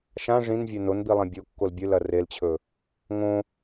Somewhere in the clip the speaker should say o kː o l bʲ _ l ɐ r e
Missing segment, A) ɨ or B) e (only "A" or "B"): A